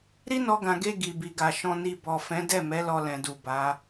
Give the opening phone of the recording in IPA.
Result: ɾ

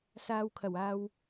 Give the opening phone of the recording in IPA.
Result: s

